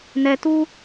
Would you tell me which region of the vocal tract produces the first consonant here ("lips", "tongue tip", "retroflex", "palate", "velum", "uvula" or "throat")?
tongue tip